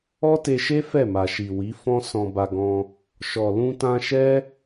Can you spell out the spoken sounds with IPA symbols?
ɔ˦te˧ʃe˦ fɛ˦˨ma˨ʃi˨wi˨˦ fɔ̃˦ sɔ̃˧ba˧ɡɔ̃˧ | ʃɔ˨lũ˧ tã˧ʃɛ˦

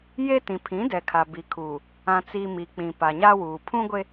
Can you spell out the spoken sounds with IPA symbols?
je˦ tĩ˨pʰĩ˨˦dɛ˨kʰa˨ bi˨kʰuː˨ | ã˨t͡si˨ mi˨ k͡pĩ˨ pa˨ɲa˦wuː˨ pʰũ˦ɡʷe˦

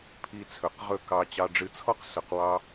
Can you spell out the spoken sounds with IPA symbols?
pʰi˧t͡sʰɵ˨qʁɵ˦˨kɑ˧ t͡ɕɑ˧ɖ͡ʐɨ˧t͡sʰɔ˦q sɵ˧qwɑ˦

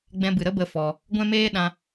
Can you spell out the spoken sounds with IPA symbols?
ɡ͡bɛ̃˧bɨ˨ɾə˦ bə˦fɔ˧ | ɡʷɛ̃˦meː˦ ɗã˧

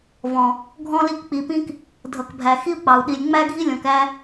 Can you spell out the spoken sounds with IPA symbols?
vɔ̃˨ | ɡʱɔ̃˧li˧k k͡pi˨pĩ˧k | dʱʌ˨kbʱæ˨ xi˦u̯k͡pɑ˨u̯ɗi˨lʲ ŋ͡mæ˦ɡʱi˦lʲɔ̃˨k æ˦

